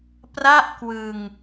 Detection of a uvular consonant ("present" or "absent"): absent